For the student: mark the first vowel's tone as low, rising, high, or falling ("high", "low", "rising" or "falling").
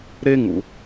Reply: high